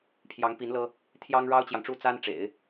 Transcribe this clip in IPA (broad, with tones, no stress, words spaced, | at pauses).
pʰjɑ˧˥ŋpi˧˥n lɤ˥ | t̪ʰjɑ˥ŋɻɑ˥ʊ̯t͡ɕjɑ˨ŋʈ͡ʂu˥˩ t͡sa˥nʈ͡ʂḛ˨˩˦ɪ̯